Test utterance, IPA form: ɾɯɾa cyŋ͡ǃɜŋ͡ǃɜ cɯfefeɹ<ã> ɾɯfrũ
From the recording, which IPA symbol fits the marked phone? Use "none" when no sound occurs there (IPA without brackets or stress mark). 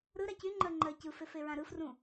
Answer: ã